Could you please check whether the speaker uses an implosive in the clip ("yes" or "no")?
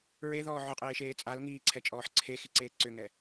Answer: no